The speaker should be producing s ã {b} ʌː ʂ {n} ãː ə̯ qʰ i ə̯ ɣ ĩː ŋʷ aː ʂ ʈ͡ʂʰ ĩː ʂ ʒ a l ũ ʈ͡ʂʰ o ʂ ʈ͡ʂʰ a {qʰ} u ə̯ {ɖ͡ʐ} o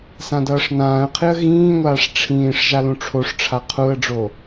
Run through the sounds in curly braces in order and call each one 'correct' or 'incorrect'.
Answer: incorrect: d, correct, correct, correct

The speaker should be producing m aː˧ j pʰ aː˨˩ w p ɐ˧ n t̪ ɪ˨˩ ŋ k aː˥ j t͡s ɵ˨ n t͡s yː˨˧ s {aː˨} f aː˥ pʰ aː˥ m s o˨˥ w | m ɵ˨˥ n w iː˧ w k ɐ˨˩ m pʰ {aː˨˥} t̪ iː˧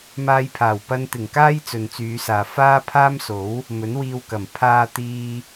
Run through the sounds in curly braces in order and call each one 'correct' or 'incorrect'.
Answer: correct, incorrect: aː˧

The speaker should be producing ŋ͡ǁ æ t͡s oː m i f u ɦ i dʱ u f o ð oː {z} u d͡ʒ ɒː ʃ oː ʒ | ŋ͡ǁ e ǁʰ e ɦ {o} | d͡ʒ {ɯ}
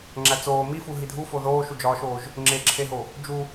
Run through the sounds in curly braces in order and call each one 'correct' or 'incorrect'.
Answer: incorrect: ʃ, correct, incorrect: u

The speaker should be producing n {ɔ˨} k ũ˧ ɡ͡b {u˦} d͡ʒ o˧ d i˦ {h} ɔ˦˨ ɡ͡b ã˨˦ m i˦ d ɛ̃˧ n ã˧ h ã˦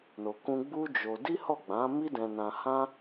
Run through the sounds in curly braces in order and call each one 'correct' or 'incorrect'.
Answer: incorrect: o˨, correct, correct

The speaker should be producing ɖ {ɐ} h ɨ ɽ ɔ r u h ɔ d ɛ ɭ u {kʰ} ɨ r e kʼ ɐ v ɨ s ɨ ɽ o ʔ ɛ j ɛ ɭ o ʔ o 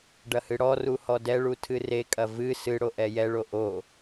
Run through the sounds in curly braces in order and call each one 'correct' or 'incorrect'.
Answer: correct, incorrect: tʰ

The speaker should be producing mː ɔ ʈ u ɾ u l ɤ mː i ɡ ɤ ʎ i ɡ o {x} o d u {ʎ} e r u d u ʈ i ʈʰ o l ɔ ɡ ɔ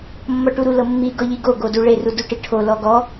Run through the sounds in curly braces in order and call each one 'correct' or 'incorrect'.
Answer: incorrect: ɡ, incorrect: ɭ

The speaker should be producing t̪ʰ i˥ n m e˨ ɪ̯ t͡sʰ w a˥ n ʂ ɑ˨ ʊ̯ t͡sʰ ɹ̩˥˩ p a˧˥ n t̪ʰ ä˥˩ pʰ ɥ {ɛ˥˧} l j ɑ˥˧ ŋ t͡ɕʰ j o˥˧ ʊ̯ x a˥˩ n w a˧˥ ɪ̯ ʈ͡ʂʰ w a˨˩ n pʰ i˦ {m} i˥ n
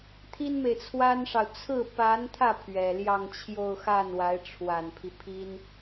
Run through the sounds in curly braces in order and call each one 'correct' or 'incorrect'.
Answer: incorrect: ɛ˨˩, incorrect: pʰ

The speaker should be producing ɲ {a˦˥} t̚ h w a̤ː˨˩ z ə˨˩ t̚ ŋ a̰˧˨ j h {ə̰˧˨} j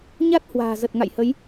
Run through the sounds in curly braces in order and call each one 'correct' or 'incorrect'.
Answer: correct, incorrect: ə˨˦

